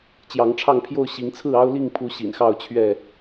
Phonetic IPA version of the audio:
t͡ɕ j ɑ˨˦ ŋ ʈ͡ʂʰ ɑ˥˨ ŋ pʰ j o˥˨ ʊ̯ ɕ i˨˦ ŋ t͡sʰ ɹ̩˥˨ ɑ˦ ʊ̯ l i˥˨ ŋ pʰ u˨˦ ɕ ḭ˨˩ n x ɑ˥˨ ʊ̯ t͡ɕʰ ɥ ɛ˥˨

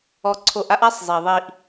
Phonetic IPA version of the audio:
ɔ˧ ǀʰ o˧ ʔ a˥ ʔ a˥ sˤ zˤ i˩ ðˤ i˧ ʔ

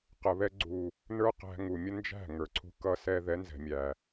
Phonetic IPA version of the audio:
q ə˨ β ɛ˧ ɡ͡ǀ u˨ | n ə˞˦ q æ̤˧ ŋ u˨ mʲ ə˦ n d͡ʒ æ̤˦˨ ŋ ə˞˨ ǀʰ ṳ˧ k ʌ˦ s ɛ˦ ð ɛ˨˦ n z ɛ̤˨ mʲ æ˨

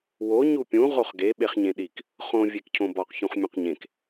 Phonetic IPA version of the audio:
w o ɲ u pʲ ũ ʁ o χ ɡ e ɓ e χ ɲ ẽ ɗ i k | χ õ vʲ e k cʰ õ b ɒ q ç ũ χ mʲ õ q ɲ ẽ k

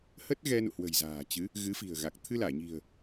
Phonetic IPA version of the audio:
h ə˦˥ t̚ ɣ ɛ˧ n ṵ˧˨ h w ə̤˨˩ j z a̤ː˨˩ t͡ɕ ɨ˨˦ | ɣ ɨ˨˦ f i̤˨˩ ə̯ ɣ a˨˩ k̚ t̪ʰ ɨ˧ l aː˧˩ ɲ i̤˨˩ ə̯

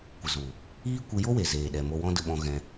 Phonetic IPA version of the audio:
kʷ ə˨ z u˨ | iː˦ kʷ ɨ˧ j o˦ w e˨ z eː˨ ɗ ɛ˨ m o˧ w ɔ̃˦ d ə˦ ɓ ɔ̃˦ ɣ ɛ̃˧

